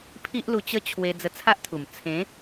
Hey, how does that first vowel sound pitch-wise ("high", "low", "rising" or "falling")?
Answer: high